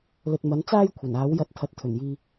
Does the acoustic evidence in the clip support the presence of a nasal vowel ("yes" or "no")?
no